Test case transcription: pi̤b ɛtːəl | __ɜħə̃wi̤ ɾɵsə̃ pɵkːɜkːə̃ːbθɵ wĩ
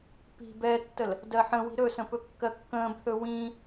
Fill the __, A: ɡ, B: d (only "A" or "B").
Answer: B